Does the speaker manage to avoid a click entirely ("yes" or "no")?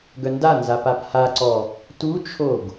no